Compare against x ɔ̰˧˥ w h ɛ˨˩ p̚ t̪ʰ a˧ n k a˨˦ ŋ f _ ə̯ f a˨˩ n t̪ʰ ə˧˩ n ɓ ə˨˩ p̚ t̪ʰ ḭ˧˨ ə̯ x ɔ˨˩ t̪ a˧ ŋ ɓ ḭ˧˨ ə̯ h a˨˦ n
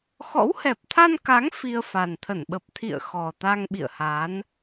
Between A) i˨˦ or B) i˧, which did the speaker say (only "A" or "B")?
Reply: B